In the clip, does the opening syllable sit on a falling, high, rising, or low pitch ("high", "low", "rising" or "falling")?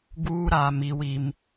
high